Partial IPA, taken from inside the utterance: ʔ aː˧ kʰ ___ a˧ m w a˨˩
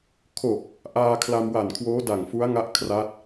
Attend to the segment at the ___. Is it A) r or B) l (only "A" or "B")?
B